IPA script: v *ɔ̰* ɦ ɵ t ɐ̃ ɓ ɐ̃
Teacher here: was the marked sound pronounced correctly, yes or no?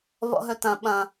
yes